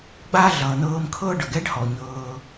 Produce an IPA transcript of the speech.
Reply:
ɡ͡b a˦ ɮ ʌː˩ n̪ ɤː˨ m kʰ ɤː˦ ɖ ʌ˩ ɡ ɛ˦ ɖ h ɔ˩ ɲ ɤː˩

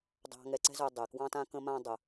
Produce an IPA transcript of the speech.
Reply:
dˤ ɑ̤˧ ŋ ɛ˧ ǀ ɛ̤˥ z œ˧ dˤ ɛ˩ k w ɑ̃˥ t ã˥ k ə̃˥ m ã˥ dˤ ə˩

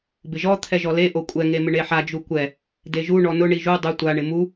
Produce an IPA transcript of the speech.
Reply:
b ɪ ʒ ɔ t̪ʰ ɛ ʒ ɔ l e ʔ o kʷʼ ɛ ŋ e m ɪ ɳ e ħ a d͡ʒ u kʷ ɛ | d e ʒ u ɳ ɔ n ʊ ɳ i ʒ u dˤ ʊ tʷ a ɳ ɪ m u

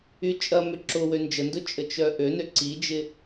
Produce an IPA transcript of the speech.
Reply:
y t͡ʃʼ ɐ m ʏ ǁ ʊ w ø n d͡ʒ ə n d ʊ t͡ʃʼ ə t͡ʃ œ ʔ ø n ø ǀ i d͡ʒ ɪ

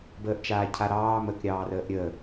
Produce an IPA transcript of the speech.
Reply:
b əː ʔ t͡ʃ aː cʰ a ɾ ɑː m ə k ɾʲ ɑː r əː ʔ ɾʲ əː

